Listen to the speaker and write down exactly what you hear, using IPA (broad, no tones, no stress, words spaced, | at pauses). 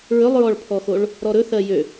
ɹɵlˠɹɔɭpʰɔxoɭ | ɾɔɾɵθɜ jø